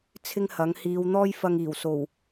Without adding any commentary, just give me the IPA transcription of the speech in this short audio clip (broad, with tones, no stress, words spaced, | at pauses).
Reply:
t͡sʰɪ˥ŋhɐ˨˥ŋ hiː˨˧w n̪ɔː˥jfɐ˧ŋiː˨˩wso˨˩w